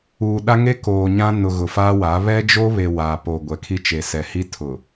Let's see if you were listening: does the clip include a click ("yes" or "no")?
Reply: no